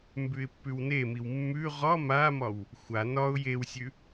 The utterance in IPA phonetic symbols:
mbʉɪ̯pːʉwnemiw mːʉ ʁɒ mamɒw | xʷa nɒʊ̯ jewsʲʉ

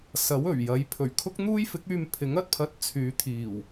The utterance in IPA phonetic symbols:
sɐ˨˥wɵ˨˩ɥjɐ˨˥j pʰɵ˨˩ɥkʰʊ˥k̚n̪uː˥j fɪ˨˥k̚yː˧m pʰɪ˨˥ŋɐ˧t̚pʰɐ˧t̚ t͡sʰyː˨˧t̪ʰiː˨˩w

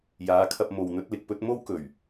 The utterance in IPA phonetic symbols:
jaː˨˧kʰɐ˧p̚ mo˨wn̪ɵ˨˥t̚lɪ˨k̚pɵ˥t̚ mo˥wkɵ˨˩ɥ

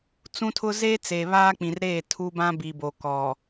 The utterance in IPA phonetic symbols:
t͡sũ˦tʰʊ˦ zeː˦ t͡seː˨βaː˦k͡pĩ˨rɾeː˦˨ tʰu˦bã˦bi˨bo˨ kɔ˨

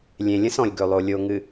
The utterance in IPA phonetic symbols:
lʲẽ˨ lʲə̃˦sɔ̃˨lʲ ɡɵ˨lˠo˨lʲo˨ ŋɨ˨

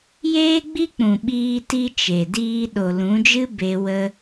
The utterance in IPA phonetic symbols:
jeː˧ɡ͡bi˧k͡pũ˨ ɓiː˦ti˦ t͡ʃe˨diː˧ ɗo˨lũ˨˦d͡ʒɨ˦ be˧wə˧

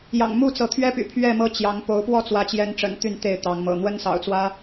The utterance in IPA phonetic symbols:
jɑ̰˨˩ŋmu˥˨t͡sɤ˨˦ t̪ʰɥɛ˦py̰˨˩ pʰɥɛ˥˨mɤ˦ t͡ɕjɑ˨˦ŋ po˨˦ʊ̯pwɔ˥˨ t͡swä˨˦t͡ɕjɛ˨˦nʈ͡ʂə̰˨˩n t̪y˥˨nt̪e˥˨ɪ̯t̪ɑ˨˦ŋmɤ̰˨˩ n̪wə˦nsɑ̰˨˩ʊ̯t͡swä˦

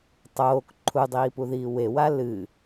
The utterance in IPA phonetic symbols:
tˤoːk ǃʰudˤiːpuðiː wewa lɨ

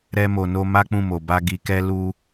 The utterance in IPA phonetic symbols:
ɾɛ˧mo˨no˧ ma˦k͡pũ˦˨mo˨ba˧ ɡi˨kɛ˧ lu˧

